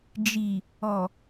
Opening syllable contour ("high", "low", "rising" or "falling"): low